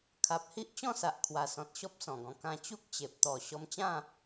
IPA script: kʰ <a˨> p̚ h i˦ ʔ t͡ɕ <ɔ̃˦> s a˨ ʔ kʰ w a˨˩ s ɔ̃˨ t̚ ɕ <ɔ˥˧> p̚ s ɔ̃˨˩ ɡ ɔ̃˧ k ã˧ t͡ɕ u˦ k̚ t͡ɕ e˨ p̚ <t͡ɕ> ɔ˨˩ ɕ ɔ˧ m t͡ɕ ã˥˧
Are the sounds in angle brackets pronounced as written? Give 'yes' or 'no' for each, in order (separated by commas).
yes, no, no, no